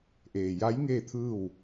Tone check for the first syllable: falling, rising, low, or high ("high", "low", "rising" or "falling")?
low